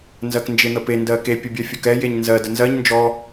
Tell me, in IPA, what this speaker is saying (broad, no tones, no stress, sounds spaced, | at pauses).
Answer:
n z ɜ k n d͡ʒ e n̪ ə p e n d ɜ k e pʲ ə bʲ ɜ fʲ ɔ k ɛ j e ɲ n z ɜ d ə n z ɜ ɲ n d͡ʒ ɔ